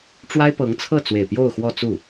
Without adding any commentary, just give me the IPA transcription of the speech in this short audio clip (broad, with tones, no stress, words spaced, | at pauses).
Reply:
ʈ͡ʂwa˥ɪ̯pɤ˧˥ŋ t͡sʰɤ˥˩t͡swe˨˩ɪ̯ pjo˥˧ʊ̯xwɔ˥˧t͡su˥˩